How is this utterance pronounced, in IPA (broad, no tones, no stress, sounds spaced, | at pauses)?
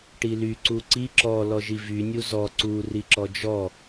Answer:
ʈ i l y ǀ u ǀ i ǁ ɔ l ɔ ʒ i v y nʲ u z ɔ ǀ u r i ǁ ɔ d͡ʒ ɔ